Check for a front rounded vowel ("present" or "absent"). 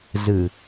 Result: absent